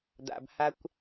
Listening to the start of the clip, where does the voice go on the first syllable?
low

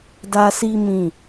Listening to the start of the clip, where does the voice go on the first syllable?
high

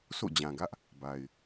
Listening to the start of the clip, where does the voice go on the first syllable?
falling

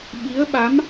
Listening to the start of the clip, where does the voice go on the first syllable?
rising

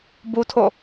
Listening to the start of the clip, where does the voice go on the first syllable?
high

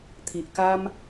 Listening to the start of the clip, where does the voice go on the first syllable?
low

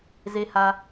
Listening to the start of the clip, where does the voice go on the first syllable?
high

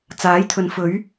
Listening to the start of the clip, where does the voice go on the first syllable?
rising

